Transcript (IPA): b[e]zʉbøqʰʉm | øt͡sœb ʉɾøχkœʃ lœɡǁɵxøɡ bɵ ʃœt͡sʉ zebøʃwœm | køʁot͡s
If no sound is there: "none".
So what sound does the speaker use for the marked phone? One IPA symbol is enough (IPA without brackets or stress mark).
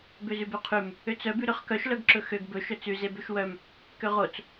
ø